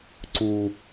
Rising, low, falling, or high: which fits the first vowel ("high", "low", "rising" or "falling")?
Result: low